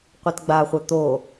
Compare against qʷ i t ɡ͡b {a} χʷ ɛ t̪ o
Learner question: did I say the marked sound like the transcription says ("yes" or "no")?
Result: yes